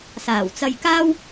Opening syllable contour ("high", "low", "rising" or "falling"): low